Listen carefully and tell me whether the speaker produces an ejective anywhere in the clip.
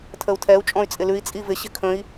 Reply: yes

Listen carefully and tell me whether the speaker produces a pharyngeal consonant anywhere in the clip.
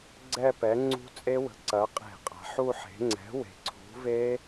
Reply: yes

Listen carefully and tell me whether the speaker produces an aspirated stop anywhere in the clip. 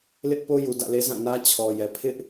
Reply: yes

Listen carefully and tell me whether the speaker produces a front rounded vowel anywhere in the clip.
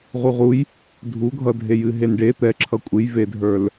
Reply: no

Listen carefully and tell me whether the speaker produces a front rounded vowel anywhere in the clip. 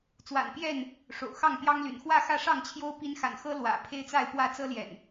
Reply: yes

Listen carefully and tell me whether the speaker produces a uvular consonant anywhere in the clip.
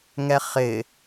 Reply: yes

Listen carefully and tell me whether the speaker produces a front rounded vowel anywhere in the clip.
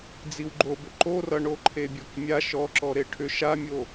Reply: yes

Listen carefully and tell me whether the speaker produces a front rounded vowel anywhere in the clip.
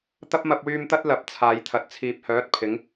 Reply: yes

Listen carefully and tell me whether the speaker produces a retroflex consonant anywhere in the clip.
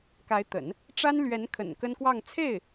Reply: yes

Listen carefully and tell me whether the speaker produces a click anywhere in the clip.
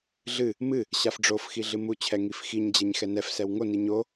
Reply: no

